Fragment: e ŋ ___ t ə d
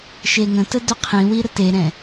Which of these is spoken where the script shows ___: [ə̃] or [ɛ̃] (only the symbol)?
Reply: ə̃